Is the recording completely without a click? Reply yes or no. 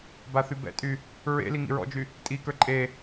no